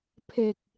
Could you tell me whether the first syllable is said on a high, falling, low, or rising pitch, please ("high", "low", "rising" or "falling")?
low